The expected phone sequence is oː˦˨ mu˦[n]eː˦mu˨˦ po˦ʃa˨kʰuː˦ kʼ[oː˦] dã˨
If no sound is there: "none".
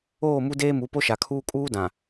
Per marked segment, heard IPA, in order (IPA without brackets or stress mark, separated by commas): d, uː˦